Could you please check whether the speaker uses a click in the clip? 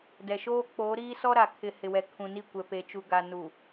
no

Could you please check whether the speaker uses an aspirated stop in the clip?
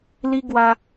no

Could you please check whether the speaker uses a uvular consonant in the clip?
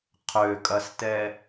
yes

